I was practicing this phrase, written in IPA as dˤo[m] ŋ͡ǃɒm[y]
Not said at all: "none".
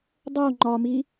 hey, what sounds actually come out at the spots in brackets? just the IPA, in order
none, i

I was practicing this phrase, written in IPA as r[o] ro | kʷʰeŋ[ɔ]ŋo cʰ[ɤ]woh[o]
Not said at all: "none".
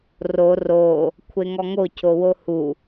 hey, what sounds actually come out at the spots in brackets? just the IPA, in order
o, ɔ, o, u

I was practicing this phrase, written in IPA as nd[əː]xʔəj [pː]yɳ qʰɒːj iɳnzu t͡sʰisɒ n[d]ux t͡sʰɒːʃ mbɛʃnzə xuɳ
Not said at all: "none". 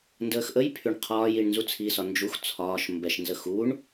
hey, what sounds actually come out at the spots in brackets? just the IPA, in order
əː, pʰ, d͡ʒ

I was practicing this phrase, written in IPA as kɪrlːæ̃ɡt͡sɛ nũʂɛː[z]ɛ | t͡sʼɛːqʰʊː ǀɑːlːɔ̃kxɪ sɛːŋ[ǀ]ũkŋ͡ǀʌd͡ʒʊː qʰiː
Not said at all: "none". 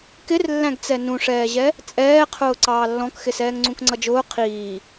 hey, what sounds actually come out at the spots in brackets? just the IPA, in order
ʑ, ŋ͡ǀ

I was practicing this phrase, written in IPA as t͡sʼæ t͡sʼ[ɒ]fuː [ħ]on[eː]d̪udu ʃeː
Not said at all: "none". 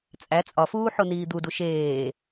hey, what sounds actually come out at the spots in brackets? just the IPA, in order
ɒ, ħ, iː

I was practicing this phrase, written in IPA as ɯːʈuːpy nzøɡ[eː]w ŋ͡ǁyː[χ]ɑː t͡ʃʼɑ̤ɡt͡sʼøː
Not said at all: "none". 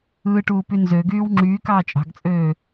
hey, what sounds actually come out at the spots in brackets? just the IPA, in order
yː, k

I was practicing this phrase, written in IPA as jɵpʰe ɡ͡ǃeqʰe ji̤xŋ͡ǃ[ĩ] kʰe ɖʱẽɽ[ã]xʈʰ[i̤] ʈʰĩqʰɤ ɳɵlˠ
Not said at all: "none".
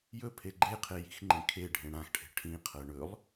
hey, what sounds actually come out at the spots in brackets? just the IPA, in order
ĩ, ã, e̤

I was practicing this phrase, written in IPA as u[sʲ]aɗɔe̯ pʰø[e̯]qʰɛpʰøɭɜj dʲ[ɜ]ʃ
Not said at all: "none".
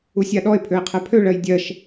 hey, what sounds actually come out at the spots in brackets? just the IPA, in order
sʲ, e̯, ɜ

